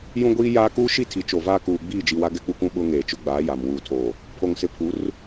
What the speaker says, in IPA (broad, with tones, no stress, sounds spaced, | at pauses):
j ũ˦ ɡʷ iː˦ j aː˦ k uː˦ ʃ i˦˨ tʰ i˨ t͡ʃ o˨ v aː˦ k uː˨ ɡ͡b iː˦˨ d͡ʒ i˨ w a˦ ɡ ɛ˦ k͡p u˦ k ũ˦ ɓ ʊ˦ ŋ eː˨ t͡ʃ ʊ˦ ɡ͡b aː˨˦ j a˨ m w uː˨ tʰ oː˨ | pʰ o˨ ŋ s ɪ˨ pʰ u˨˦ r